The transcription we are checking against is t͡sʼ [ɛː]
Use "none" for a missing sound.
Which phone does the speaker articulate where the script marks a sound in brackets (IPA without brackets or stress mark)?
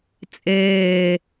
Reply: eː